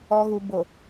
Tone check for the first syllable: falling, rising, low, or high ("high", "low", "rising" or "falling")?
low